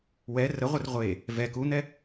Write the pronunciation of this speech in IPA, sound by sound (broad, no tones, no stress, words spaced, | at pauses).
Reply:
wɛ rəʁʷɘr ʁʷe | vɛ kun̪ɛ